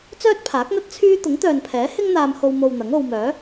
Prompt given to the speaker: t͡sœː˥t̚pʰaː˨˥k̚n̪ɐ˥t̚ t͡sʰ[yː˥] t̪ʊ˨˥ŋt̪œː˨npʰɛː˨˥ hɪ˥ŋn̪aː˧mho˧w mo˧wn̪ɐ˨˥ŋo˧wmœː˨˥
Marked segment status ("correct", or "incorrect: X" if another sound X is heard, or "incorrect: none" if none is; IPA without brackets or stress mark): correct